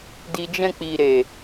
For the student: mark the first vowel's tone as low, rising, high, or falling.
low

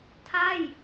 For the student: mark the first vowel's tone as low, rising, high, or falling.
falling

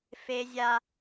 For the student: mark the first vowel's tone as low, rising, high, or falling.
high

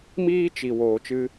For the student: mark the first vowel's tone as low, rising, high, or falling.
high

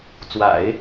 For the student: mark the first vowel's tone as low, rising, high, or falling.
low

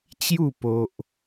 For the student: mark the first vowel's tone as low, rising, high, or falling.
falling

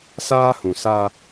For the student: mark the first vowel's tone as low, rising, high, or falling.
high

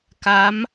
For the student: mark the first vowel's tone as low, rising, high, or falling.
rising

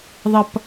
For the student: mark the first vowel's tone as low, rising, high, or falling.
high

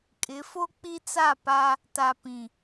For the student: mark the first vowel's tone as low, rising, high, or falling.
rising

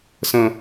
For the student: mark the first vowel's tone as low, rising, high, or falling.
low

